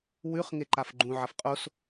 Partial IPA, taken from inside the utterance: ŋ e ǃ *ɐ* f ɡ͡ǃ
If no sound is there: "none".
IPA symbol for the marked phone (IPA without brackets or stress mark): a